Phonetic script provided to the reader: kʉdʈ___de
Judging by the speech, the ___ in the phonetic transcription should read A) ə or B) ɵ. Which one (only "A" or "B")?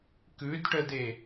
A